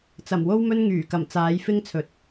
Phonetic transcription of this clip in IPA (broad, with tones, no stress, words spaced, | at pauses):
t͡sɐ˨˩mwo˥wmɵ˥n ŋyː˨˩kɐ˨˩m t͡saː˨˧jfɪ˥ŋt͡sʰɵ˨t̚